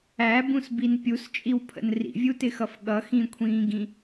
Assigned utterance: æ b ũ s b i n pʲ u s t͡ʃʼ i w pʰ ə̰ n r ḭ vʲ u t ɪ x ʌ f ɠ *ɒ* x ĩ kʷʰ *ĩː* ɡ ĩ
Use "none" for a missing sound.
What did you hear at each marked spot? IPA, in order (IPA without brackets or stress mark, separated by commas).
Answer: ʌ, ĩː